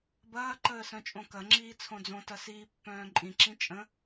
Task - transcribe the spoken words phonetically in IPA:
bɐːǃəː sœ̃t͡ʃʼõkɐŋ͡ǁiː t͡sʰõd͡zõtɐ siːpːœ̃ːǃʼĩǁĩ t͡ʃʼə̃

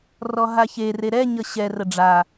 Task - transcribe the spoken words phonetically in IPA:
rɔɦaçere ɾɛɲʌ ɕɛrə ɖ͡ʐa

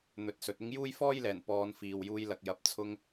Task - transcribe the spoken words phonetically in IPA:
n̪ɵ˨˥t̚sɵ˨t̚ ɪ˥ŋ juː˥jfɔː˥jlɛː˨˩n pɔː˨˧nfiː˨w juː˧jlɐ˨k̚jɐ˨˥p̚ t͡sʰʊ˧ŋ

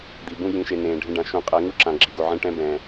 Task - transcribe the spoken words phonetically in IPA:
d̪i˨bũ˦ jĩ˨ʃe˨ nẽː˨ɖʱẽ˦ɖã˨˦ ʃũ˨˦qʼɛ˨˦ŋu˦ǁã˨ ɡ͡ǁi˨ɡo˨ʕẽ˦ ʈɛ̃˦bɛ̃ː˨

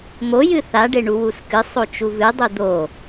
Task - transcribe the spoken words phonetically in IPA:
mojɨ θaɖeɳu wuskɨ sˤot͡ʃuvɨdˤɨ d̪o

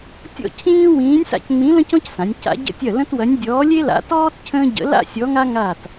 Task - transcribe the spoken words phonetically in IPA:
tʲɔ̰˥˨cʰĩː˥ wĩː˧˥nʲsa̰˥˨cŋ͡mĩ˧˥ lə̃˥cɔ̃˥csã˩˧nʲ ca̰˧˥ɟə̰˥tʲɐ˥˨ lə̃˥twɐ˧˥nʲ dʲɔː˧˥lʲe˥la̰˧˥ tɔː˥t cʰə̃ː˥ɟə̰˧˥ la̰˥sʲɔ˧˥ŋa˥ ŋa˥˨t

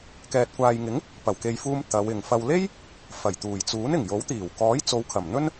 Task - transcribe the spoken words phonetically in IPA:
kɛː˨t̚kʷaː˨jŋɪ˨˥ŋ | pɐ˨˩wke˨jfuː˧m t̪ɐ˨˧wɪ˨ŋ fɐ˨wle˥j | fɐ˨˩jt̪uː˨˩jt͡suː˨˥n ɪ˨˩ŋjo˨˥wt̪iː˨˩w kɔː˨˥jt͡so˨˧wkʰɐ˨˩m n̪ɵ˥n

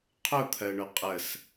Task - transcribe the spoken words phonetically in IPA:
qʰʊt̪ʰɜɳʊ qʼəs

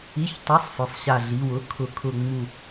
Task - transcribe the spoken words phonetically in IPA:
i˧˥˧çtˤʊ˧˥˧sˤ fɪ˧˥˧sˤ ɕa˥˧ɮi˧˥˧w ʊ˧˥˧kʰʊ˥˧ kʰʊ˥˧ŋ͡mu˥˧

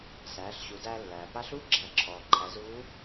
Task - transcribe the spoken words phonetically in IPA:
sæː˩˧ɬɕu˩˧dæː˧ lːæː˩pa˧˥ɬuː˥ ɡ͡ǁæ˩˧ǁʰɔː˩ǃʰæ˩˧ zuː˧˥

